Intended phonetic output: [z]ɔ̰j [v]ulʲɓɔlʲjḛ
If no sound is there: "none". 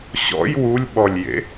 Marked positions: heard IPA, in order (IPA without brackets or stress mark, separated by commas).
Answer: ɕ, w